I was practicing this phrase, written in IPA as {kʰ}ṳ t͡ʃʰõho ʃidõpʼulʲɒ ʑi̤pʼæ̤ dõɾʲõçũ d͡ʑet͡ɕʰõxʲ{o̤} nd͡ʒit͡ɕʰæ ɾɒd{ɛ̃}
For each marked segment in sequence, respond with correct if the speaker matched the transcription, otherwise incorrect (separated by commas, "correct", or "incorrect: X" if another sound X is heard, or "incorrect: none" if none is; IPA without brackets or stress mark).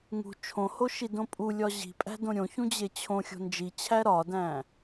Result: incorrect: ŋ, correct, incorrect: æ̃